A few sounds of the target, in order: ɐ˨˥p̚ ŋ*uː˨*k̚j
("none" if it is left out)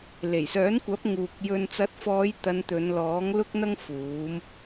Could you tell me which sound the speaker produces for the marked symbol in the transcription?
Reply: uː˨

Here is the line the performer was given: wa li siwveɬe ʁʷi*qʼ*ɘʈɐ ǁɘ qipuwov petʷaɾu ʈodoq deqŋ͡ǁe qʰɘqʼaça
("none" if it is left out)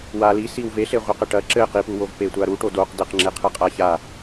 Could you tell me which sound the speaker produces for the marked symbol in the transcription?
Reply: q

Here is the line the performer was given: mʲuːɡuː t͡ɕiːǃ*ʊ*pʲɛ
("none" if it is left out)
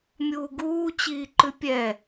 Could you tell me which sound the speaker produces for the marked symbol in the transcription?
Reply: ʉ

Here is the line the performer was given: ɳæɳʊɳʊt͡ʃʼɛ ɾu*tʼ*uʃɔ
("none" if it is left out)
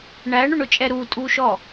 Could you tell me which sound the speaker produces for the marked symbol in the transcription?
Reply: tʼ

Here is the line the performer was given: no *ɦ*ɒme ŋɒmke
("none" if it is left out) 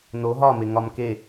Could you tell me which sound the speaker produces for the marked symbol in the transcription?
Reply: ɦ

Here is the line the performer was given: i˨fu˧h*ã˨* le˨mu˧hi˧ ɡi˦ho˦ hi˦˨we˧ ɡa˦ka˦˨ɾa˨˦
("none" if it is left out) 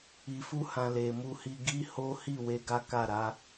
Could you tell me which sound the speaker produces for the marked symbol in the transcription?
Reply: ã˨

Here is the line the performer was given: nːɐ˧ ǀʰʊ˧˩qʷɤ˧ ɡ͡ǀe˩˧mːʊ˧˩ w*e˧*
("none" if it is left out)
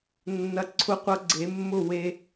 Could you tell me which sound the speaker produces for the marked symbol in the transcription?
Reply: e˧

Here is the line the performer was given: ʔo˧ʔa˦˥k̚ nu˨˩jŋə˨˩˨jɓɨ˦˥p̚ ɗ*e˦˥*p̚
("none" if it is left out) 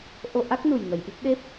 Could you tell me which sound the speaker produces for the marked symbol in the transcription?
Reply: e˦˥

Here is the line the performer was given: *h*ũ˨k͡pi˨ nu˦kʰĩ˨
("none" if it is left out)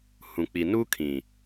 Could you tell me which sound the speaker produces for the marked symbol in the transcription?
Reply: h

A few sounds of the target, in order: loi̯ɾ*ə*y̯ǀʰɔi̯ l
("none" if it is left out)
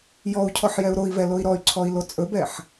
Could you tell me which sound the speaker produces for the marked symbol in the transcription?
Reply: ɔ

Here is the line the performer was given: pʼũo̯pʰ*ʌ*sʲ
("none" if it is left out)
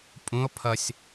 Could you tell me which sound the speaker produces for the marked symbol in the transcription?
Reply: ʌ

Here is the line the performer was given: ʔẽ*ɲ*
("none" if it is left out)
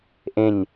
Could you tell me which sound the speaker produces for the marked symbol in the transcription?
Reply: ɲ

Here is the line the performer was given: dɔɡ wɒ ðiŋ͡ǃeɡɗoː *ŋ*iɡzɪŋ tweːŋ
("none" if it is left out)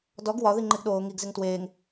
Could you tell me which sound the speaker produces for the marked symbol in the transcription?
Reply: ŋ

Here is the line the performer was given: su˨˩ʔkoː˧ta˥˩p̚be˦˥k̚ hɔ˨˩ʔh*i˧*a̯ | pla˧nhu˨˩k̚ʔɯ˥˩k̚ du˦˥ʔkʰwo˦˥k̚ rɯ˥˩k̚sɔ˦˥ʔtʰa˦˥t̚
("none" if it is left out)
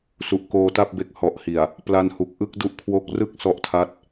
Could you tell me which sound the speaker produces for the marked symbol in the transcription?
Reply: i˨˩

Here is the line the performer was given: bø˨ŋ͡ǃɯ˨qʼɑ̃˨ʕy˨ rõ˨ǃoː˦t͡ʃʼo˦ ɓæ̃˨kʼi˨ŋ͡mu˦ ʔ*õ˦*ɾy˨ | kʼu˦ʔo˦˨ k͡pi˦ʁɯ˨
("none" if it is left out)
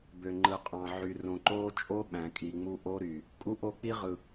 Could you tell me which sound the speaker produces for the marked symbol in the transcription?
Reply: o˦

